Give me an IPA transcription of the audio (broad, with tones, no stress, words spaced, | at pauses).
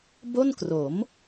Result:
bo˥˩nkro˩˦m